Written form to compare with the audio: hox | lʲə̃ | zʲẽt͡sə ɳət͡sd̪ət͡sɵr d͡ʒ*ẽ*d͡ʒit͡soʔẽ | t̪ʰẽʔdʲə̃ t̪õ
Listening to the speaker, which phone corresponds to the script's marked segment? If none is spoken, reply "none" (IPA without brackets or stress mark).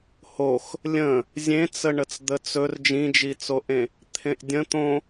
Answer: ĩ